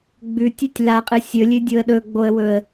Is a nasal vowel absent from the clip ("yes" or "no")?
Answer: yes